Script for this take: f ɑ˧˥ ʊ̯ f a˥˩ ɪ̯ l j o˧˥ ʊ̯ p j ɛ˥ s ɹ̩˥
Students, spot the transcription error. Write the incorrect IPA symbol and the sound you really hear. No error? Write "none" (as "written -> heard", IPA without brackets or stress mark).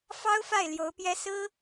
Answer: ɑ˧˥ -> ɑ˥